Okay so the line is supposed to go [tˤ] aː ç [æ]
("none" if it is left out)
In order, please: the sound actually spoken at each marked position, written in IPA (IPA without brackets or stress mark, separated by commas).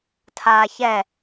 tʰ, ɛ